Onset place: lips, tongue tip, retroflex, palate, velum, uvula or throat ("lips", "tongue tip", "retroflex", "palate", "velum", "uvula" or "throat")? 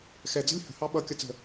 velum